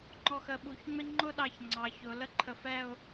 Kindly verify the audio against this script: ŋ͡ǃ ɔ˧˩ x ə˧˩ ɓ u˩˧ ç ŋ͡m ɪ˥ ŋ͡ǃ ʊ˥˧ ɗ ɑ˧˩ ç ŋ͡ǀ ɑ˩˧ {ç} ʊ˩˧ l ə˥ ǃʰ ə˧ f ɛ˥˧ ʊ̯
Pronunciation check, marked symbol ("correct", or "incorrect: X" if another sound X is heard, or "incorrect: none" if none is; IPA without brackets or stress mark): correct